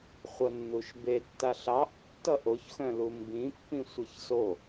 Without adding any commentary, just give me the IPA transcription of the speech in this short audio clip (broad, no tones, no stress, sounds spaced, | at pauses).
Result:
χʷ ʌ nː u ʃ b e tː a ɬ ɑ ʔ tː ʌ ʔ o ç x œ̃ l u m b ĩ pː ĩ sʷ ʌ ç s o